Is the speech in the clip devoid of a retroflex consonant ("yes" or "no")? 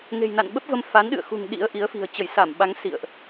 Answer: yes